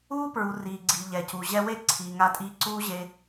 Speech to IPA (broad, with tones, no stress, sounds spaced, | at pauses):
uː˦ p ɹ u˨ r iː˨ ɡ͡ǀ i˨ ʎ ɛ˨ c u˨ ʑ ɛ˧ w e˦˨ ǀʰ iː˨ ŋ a˧ tʼ iː˧ ǀ uː˦ ʑ e˧